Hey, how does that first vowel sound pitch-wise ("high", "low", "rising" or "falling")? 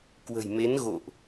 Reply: low